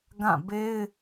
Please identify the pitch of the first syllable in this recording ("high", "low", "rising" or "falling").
falling